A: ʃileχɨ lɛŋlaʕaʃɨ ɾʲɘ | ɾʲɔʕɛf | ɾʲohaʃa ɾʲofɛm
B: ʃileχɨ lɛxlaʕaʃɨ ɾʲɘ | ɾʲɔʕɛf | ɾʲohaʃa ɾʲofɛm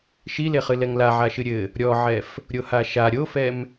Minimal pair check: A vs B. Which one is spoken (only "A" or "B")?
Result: A